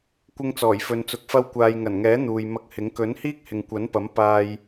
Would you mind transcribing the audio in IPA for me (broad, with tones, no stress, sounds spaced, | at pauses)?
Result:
kʷ ɪ˧ ŋ t͡s ɔː˨˩ j f ɵ˨ n t͡s ʊ˨˥ k̚ f ɐ˧ w kʷ aː˨ j ŋ ɐ˨˩ n ŋ ɛː˨˥ n̪ uː˨ j m ɐ˧ k̚ h ɪ˨˥ ŋ k ɵ˨˥ n h iː˥ k̚ h ɪ˨ ŋ kʷ ɐ˨˥ n p ɐ˨˥ m p aː˧ j